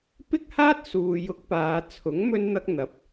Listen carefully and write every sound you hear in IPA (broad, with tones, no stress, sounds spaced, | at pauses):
p ɪ˥ k̚ h aː˥ t̚ s uː˨ j ʊ˧ k̚ p aː˨˧ t͡sʰ ʊ˨˥ ŋ m ɵ˥ n n̪ ɐ˥ k̚ n̪ ɐ˨˥ p̚